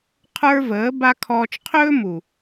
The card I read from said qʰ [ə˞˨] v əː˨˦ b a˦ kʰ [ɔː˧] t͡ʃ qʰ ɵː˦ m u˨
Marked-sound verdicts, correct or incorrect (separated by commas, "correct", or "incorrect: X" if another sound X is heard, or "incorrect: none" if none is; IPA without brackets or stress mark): incorrect: ə˞˦, correct